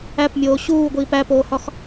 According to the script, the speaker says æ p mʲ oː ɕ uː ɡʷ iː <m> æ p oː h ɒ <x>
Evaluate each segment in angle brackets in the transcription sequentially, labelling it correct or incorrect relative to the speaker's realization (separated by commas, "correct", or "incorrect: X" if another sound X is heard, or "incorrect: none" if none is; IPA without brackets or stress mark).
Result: incorrect: p, correct